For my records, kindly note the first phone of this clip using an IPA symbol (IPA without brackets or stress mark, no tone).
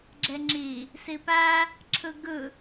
ɡ͡ǁ